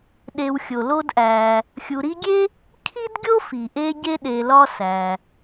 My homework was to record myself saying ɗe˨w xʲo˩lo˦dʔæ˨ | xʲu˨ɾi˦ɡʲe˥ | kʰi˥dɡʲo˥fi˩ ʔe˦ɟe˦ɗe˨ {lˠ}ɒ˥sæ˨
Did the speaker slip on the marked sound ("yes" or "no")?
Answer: yes